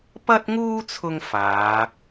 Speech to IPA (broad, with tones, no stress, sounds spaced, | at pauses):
p ɐ˥ t̚ ŋ uː˥ t͡sʰ ʊ˧ ŋ f aː˨˧